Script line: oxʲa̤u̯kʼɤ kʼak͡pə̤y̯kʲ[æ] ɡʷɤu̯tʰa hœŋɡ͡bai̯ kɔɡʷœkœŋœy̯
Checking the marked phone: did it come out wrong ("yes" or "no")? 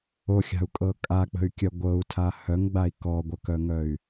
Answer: yes